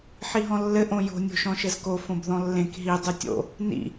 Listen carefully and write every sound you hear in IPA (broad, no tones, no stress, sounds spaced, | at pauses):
ħ i ɦ ɔ̃ lː ɘ ʔ õ j o̤ nʲ o̤ ʃ ɔ̃ ʃ ɘ z k o f õ b ð ɔ̃ lː ẽ k ɦ i dˤ ʉ tʲ o̰ | n ḭ